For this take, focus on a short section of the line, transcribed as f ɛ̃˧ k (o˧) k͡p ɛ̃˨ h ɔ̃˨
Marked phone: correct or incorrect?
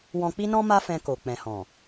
incorrect: o˨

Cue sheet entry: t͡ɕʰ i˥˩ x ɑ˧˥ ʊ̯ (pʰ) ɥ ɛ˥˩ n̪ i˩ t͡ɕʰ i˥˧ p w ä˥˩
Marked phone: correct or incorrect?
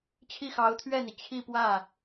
incorrect: t̪ʰ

